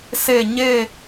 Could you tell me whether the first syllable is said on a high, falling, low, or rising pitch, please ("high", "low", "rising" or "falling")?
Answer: falling